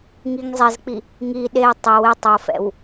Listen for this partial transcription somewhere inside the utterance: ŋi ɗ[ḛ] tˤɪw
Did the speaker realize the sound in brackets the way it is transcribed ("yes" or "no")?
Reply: no